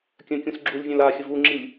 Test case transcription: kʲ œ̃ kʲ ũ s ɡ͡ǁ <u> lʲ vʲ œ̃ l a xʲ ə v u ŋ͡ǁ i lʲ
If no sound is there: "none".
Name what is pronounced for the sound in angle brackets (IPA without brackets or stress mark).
u